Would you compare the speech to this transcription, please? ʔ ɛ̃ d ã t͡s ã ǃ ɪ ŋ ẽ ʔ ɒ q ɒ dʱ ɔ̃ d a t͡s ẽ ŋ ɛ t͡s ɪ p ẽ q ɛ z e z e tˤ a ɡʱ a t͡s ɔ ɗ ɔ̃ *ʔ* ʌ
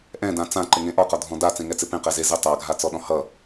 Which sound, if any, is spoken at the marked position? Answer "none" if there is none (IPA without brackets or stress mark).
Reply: h